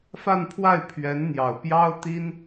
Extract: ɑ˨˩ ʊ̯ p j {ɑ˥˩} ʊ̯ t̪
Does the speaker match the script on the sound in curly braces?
no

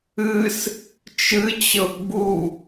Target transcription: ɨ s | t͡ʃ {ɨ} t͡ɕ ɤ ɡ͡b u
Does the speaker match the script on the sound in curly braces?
yes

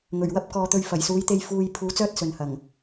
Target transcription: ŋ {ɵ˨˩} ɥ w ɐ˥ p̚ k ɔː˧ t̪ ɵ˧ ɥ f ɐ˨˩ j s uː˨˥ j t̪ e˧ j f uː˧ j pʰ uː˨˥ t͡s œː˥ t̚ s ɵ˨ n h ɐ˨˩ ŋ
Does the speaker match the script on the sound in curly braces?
yes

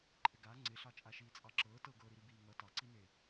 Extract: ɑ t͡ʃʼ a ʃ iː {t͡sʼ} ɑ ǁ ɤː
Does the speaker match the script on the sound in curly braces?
yes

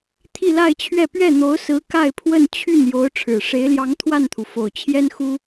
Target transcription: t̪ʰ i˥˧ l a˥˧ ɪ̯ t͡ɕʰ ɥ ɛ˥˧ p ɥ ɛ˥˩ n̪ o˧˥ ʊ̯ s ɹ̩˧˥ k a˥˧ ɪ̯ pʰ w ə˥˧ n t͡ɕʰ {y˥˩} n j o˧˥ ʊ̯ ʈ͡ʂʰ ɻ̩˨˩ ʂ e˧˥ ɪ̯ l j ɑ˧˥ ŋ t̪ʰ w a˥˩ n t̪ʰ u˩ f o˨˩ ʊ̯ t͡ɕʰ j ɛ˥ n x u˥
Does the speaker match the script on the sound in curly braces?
yes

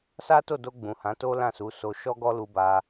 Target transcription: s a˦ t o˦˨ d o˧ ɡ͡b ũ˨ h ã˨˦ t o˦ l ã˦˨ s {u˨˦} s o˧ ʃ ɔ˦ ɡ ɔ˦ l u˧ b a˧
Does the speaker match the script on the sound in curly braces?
yes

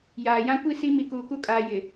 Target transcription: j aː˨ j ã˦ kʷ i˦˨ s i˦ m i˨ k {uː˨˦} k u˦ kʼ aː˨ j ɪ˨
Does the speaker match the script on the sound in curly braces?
no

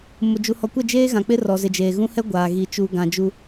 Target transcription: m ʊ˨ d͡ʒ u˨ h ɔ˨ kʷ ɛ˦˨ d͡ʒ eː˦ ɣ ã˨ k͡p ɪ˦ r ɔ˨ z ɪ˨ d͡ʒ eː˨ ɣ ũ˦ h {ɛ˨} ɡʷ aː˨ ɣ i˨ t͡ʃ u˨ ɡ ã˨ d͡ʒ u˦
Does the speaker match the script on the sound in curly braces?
no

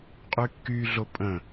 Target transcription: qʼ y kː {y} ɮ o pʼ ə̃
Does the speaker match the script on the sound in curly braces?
yes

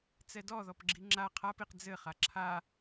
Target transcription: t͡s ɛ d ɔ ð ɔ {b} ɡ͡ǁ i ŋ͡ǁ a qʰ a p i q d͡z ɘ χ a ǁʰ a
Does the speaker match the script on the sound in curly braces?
no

